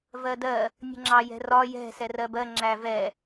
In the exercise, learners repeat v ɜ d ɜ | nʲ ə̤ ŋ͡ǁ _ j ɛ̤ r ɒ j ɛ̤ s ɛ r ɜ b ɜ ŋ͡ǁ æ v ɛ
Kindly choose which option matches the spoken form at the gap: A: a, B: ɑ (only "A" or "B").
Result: B